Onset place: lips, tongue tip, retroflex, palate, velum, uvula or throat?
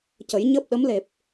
palate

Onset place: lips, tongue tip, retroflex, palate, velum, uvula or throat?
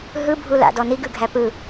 throat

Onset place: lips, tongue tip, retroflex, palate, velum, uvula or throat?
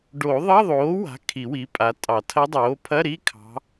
retroflex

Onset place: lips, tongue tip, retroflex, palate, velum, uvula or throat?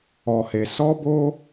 throat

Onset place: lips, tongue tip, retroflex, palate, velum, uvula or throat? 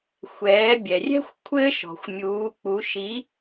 velum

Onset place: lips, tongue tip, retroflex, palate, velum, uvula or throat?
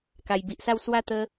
velum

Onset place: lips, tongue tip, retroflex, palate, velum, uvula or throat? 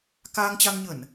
velum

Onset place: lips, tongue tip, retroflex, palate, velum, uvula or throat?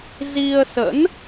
tongue tip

